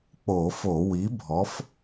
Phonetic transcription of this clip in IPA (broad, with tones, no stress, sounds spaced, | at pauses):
k͡p o˧˩˧ f o˧˩˧ w i˨˥ bʱ ɔ˨˥ f